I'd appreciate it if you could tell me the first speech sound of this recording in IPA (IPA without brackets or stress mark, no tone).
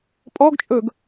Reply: pʼ